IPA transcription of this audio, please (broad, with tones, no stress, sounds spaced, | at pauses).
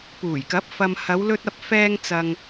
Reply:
p uː˨˩ j k ɐ˨˥ p̚ f ɐ˨ m h ɐ˨˧ w l ɵ˧ t̚ ɐ˧ p̚ f ɛː˧ ŋ t͡s ɐ˨ ŋ